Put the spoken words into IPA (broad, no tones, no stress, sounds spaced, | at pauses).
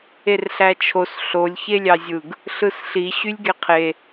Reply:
e r ɬ æ t͡ʃʰ o s ɬ o lʲ ç e lʲ ɑ zʲ ɯ ɡ | ɬ ɯ s ɬ i ɕ y lʲ ɡ e qʰ e